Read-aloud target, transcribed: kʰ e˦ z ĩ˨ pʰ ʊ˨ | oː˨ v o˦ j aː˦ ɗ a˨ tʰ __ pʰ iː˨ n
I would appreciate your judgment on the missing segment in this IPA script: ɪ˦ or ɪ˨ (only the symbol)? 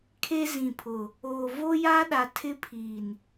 ɪ˦